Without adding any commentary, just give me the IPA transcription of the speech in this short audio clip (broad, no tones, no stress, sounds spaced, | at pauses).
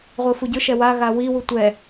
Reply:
ʁʷ ɯ f u ɟ ɯ ʃ ɛ w a ɣ a w i w u tʷ ɛ